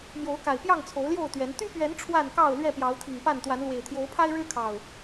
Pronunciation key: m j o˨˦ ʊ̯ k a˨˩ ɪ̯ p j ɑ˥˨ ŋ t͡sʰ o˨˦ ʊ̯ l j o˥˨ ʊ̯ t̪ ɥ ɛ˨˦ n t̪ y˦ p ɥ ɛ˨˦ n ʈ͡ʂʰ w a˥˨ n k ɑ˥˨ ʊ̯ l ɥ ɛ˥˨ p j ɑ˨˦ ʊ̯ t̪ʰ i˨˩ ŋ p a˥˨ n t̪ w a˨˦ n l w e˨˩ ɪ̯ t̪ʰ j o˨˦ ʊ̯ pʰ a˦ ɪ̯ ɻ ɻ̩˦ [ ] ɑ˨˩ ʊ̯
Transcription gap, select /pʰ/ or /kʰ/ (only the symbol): kʰ